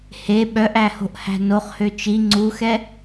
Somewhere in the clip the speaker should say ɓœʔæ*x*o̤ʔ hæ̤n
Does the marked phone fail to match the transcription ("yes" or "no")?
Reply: yes